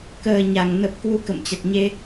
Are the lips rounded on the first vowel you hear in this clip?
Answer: no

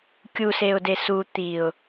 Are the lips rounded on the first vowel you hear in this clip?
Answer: yes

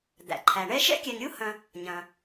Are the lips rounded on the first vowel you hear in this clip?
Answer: no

